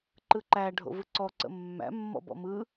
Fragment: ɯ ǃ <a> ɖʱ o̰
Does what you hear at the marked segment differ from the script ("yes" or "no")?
yes